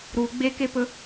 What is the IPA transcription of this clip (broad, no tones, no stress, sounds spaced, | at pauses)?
ɾ u ɡ͡b e k e p ɵ